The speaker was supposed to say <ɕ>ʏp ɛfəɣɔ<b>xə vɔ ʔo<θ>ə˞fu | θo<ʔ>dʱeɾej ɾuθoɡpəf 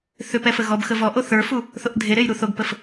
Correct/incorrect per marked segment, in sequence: incorrect: θ, correct, correct, correct

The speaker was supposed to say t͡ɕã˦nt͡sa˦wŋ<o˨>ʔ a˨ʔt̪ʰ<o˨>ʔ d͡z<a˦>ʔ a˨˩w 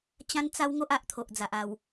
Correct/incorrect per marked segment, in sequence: incorrect: o˦, correct, incorrect: a˨

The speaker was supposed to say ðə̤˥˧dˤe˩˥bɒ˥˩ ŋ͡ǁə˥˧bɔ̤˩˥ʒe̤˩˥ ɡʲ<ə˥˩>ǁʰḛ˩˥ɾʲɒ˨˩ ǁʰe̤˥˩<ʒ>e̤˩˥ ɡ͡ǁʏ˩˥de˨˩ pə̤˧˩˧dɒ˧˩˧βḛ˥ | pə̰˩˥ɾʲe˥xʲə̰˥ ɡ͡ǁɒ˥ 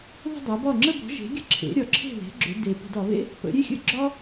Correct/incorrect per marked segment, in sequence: correct, incorrect: ð

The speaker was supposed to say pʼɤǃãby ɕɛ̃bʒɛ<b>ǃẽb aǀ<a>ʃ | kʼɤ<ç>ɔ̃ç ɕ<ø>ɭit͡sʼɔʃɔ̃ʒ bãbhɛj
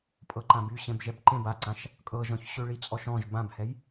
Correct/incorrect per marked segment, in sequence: correct, incorrect: ã, incorrect: ʒ, correct

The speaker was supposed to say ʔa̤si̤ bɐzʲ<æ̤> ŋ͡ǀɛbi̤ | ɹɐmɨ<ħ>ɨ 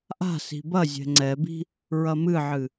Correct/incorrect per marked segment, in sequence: incorrect: ɛ̤, incorrect: ʕ

